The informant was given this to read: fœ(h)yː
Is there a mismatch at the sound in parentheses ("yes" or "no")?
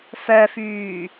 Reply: yes